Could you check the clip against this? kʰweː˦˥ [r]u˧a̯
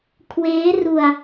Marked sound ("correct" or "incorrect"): correct